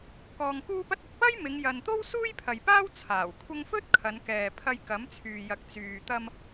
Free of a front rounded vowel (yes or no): no